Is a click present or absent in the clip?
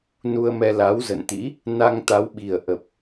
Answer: absent